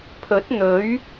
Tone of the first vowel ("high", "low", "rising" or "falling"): rising